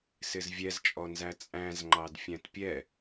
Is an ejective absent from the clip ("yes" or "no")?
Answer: no